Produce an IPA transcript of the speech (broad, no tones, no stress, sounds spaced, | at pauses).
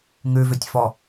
ŋ ʉ v ø tʲ f ɔ